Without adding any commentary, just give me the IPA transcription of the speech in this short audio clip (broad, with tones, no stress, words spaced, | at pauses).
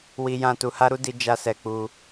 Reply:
wi˦jã˦ tu˧ha˦ɾu˦ di˦ d͡ʒa˦sɛ˧k͡pu˧